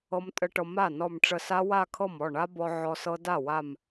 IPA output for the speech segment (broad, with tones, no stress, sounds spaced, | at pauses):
ɤ˦˥ m tʼ ə˦˥ ʈ ɤ˧ m a˥˩ n ɔ˧˩ m ʈ͡ʂ ə˧˩ s a˦˥ w a˥˧ kʰ ɤ˥˩ m ɔ˥˩ ɳ a˦˥ b ɔ˧ ʕ ɔ˧ s ɤ˦˥ d a˥˩ w a˧˩ m